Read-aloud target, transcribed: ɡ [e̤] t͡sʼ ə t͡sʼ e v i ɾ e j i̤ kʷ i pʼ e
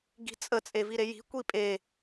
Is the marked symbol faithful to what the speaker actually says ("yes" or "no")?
no